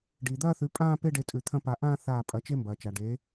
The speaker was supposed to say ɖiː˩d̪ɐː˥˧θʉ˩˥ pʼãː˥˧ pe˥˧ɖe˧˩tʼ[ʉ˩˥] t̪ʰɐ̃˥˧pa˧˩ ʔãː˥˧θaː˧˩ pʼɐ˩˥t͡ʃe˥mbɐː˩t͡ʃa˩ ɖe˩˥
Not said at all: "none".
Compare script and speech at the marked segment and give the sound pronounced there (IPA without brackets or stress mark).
ʉ˩